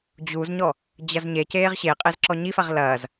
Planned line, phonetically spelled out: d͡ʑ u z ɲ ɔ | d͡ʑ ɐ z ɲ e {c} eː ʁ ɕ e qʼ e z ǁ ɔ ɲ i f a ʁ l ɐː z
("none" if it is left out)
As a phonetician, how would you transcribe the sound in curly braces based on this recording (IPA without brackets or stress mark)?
c